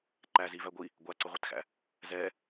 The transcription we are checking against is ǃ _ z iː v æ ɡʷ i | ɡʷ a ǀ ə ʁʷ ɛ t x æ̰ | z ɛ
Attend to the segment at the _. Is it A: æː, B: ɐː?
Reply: A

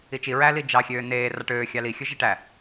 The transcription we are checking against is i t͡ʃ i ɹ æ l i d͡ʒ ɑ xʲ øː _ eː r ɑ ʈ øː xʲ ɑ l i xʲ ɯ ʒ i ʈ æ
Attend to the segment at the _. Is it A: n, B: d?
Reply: A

